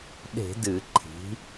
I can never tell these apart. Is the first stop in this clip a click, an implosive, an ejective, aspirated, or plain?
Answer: implosive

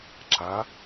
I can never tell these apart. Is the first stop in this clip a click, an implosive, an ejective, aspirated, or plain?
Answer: click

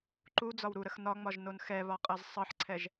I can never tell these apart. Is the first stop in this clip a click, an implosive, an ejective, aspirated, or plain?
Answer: click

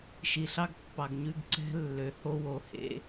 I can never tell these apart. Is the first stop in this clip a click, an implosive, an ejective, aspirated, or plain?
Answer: plain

